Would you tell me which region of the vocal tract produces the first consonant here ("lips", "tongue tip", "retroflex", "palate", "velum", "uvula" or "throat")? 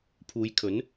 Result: lips